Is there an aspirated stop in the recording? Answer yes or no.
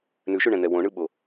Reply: no